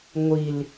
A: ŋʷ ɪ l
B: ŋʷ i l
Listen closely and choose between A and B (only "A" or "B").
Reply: B